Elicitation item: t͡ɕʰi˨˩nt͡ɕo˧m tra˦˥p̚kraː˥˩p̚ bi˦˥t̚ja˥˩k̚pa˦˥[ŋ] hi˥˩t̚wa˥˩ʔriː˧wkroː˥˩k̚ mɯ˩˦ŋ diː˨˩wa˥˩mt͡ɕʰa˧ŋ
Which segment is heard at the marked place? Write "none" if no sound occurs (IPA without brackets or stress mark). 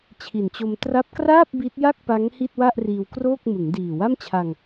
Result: ŋ